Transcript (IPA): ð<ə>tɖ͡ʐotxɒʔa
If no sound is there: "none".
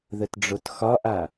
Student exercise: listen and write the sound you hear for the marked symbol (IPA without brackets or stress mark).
ə